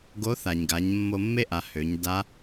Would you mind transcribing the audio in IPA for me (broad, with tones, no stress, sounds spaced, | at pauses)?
ɡ o˧˥ θ a˩ ɲ ɡ a˩˧ ɲ mː o˧ mː e˥ ʔ a˩˧ h ø˩˧ ɲ d a˧˥